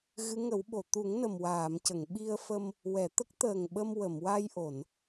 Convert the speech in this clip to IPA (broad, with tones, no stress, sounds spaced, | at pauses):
ɣ ɨ˧˥ ŋ ə˨˩˦ w ɓ o˨˩˨ t̪ u˨˩˦ ŋ n ə˨˩ m w aː˨˩˨ m c ə˨˩˨ ŋ ɓ i˧ ə̯ f ə˧ m | w ɛ˨˩˨ t̪ ə˦˥ k̚ t̪ əː˨˩ ŋ ɓ ə˧ m w ə˨˩˨ m w a˧ j ʔ o˨˩˨ n